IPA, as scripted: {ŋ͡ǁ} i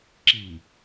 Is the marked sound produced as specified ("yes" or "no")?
no